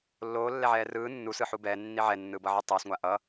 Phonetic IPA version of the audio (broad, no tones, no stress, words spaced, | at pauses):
lːoːlːɛʕɛː rɯː nːusɯħu bɛːnːi ʕɛnːɯːbʌʕi tˤɛːsŋʷa ʔʌ